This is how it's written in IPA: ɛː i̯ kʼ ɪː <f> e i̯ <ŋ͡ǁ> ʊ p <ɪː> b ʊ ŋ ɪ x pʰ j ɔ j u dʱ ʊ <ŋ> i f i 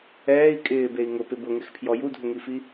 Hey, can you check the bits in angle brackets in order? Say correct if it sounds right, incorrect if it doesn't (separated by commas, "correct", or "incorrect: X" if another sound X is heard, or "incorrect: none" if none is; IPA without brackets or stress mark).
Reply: incorrect: b, incorrect: ŋ, incorrect: ɪ, correct